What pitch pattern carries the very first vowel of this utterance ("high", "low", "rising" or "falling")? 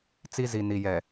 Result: high